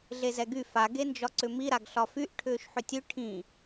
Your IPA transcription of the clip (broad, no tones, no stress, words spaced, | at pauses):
ɮezɛɡy fa ɡend͡ʒɒǀʏmi ɾaɡɬɒfyʔ ʈʰʏːʃħʏtʲʉ ʈʰĩ